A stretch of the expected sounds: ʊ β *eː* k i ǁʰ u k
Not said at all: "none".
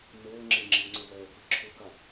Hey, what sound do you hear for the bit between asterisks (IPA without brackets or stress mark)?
ɛː